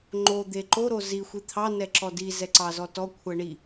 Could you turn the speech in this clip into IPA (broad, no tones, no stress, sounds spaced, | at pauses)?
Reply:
ŋ͡ǃ o d̪ e ǃ o ɾ o z i xʷ i t̪ʰ ɑ n ɛ ǁ ɔ d i z ɛ ǀ ɑ z ɔ t ɔ kʷʰ ɛ ɳ i